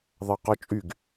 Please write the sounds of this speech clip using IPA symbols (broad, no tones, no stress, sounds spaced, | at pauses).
ðˤ ɑ q ɔ t͡ʃʼ y ɡ